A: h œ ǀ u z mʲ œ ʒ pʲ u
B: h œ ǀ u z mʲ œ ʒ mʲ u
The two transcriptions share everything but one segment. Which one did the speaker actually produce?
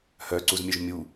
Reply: B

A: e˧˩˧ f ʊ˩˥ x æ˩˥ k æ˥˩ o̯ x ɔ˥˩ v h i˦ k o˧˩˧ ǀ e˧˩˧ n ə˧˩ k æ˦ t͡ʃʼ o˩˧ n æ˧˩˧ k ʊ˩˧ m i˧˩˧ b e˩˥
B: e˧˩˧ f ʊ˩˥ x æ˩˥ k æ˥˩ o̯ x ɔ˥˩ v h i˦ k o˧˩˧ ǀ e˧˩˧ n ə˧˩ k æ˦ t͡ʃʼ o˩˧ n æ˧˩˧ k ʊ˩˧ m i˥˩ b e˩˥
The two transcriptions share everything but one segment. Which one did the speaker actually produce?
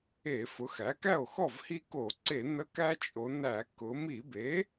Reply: A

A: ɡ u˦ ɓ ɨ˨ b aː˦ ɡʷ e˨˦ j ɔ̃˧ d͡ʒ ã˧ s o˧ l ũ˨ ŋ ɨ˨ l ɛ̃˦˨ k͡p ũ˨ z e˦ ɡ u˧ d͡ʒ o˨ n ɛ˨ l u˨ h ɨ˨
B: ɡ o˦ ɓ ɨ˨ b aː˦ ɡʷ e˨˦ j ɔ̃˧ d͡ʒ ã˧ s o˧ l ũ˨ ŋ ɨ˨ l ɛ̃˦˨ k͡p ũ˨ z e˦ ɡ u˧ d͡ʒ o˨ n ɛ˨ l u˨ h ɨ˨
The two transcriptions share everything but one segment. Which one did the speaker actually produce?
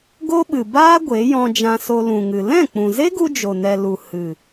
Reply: B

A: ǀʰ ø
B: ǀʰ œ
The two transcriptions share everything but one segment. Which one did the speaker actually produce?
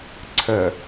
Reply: B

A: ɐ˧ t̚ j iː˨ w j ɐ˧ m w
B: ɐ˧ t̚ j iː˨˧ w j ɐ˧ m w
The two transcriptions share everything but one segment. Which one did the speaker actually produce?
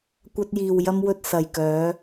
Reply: A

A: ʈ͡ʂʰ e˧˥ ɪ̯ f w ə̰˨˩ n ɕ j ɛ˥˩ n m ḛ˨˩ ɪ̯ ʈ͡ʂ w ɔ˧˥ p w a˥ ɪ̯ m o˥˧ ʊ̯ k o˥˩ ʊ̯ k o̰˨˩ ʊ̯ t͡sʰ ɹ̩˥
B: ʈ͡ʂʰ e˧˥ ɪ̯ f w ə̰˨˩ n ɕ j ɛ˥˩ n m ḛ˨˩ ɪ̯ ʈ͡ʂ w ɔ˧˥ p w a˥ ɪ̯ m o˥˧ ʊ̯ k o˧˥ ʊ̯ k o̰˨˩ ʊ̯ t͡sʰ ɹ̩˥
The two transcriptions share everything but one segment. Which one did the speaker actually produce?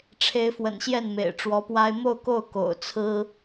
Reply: A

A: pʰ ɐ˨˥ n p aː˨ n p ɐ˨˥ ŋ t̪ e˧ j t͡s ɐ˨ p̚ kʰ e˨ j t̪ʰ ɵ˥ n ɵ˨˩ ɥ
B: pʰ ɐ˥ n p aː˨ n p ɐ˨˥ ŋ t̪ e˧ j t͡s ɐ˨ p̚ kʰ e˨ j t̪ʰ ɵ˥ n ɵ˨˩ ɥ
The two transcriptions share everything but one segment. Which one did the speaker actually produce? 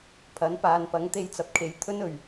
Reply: A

